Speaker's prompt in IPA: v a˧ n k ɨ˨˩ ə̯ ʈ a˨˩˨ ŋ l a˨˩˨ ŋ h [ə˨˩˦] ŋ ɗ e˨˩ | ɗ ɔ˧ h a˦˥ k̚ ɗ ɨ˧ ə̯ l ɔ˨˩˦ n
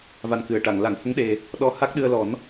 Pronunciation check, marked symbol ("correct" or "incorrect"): incorrect